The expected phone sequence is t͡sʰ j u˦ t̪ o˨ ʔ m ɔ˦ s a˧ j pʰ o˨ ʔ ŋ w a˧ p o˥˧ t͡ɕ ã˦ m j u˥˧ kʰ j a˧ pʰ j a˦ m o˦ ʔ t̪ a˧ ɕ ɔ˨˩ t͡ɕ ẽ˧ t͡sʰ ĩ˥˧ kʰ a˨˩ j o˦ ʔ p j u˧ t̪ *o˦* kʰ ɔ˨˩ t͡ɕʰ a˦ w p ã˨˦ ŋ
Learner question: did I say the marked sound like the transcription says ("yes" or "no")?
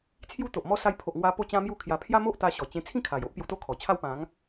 yes